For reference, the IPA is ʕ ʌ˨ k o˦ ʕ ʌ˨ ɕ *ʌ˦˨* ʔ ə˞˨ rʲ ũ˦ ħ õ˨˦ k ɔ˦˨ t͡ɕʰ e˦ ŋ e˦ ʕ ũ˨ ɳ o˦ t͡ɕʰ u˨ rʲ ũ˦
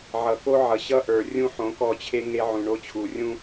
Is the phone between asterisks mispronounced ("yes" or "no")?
yes